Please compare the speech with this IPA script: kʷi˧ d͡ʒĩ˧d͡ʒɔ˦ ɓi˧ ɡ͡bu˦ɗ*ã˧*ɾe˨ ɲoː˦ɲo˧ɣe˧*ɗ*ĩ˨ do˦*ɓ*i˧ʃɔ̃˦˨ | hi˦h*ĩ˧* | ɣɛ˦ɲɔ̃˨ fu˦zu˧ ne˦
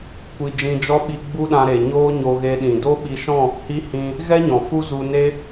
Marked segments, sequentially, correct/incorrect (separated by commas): correct, correct, correct, correct